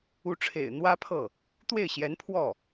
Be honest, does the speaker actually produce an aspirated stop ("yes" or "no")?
yes